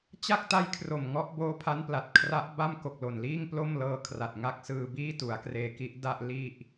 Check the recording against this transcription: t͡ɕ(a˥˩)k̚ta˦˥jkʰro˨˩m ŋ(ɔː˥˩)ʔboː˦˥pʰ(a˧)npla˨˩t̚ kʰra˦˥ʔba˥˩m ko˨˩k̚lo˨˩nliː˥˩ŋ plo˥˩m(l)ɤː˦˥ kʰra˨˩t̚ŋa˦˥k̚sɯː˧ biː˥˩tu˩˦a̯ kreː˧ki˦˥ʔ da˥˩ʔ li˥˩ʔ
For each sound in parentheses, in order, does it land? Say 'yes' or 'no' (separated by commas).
yes, no, no, yes